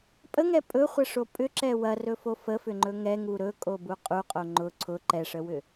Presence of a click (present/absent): present